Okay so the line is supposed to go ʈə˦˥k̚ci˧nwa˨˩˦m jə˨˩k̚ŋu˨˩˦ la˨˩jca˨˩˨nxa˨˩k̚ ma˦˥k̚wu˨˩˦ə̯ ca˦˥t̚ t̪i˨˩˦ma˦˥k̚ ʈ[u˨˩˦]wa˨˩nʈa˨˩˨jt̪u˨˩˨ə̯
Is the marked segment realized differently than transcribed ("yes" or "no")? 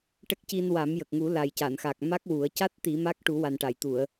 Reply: no